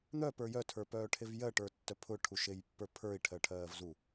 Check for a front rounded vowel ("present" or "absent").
present